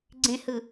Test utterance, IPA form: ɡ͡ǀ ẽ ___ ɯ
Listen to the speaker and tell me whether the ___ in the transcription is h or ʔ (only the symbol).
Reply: h